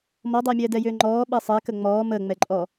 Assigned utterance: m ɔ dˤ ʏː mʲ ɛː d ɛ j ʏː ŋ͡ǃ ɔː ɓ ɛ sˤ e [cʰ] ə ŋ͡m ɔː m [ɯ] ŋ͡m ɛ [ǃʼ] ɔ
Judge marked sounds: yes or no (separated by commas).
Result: no, no, yes